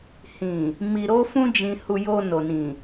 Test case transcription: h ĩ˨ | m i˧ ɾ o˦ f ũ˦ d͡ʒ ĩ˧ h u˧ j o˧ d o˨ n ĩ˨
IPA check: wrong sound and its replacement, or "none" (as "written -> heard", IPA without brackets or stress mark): d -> n